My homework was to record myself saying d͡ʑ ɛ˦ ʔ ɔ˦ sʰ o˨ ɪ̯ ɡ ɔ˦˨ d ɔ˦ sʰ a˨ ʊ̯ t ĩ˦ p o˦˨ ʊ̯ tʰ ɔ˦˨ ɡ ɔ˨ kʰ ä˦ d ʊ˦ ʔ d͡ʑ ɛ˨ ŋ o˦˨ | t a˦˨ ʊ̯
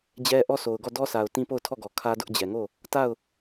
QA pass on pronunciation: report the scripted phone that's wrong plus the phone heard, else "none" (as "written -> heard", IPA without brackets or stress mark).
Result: ɪ̯ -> ʊ̯